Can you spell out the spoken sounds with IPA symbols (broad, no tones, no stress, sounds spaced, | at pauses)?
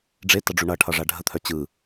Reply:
ɖ͡ʐ e t ʌ ɖ͡ʐ u ɳ ʌ ʈʰ ʌ ʐ a ɖʱ ə t̪ʰ œ t͡ɕ ɯ